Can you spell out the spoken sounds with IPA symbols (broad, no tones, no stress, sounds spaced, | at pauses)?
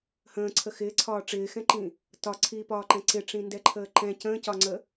h ə̃ː ǀʰ ə x ɪː ǀʰ ɒː ʈ͡ʂ ɪː x ɛ̃ ǃ ĩ | t ɒ ǀʰ iː p ɒː ǃ ɛ̃ ǀ ɪ ʈ͡ʂ ĩ n d ɛ ǃʰ əː ǃ ɛ̃ c ə̃ː c ɒ ŋ͡ǀ ə